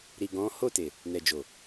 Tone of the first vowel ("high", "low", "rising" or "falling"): low